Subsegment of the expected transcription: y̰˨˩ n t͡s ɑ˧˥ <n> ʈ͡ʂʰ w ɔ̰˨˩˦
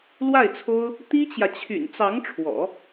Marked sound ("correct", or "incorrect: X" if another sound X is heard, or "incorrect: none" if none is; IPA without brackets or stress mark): incorrect: ŋ